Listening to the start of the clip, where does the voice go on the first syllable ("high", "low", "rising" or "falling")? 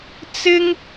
high